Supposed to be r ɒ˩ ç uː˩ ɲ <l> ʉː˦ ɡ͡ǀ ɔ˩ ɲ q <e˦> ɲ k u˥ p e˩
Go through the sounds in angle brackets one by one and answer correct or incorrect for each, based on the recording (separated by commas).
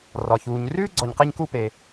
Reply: incorrect, correct